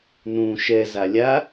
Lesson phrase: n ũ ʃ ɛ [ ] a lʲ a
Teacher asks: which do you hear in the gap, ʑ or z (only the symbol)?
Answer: z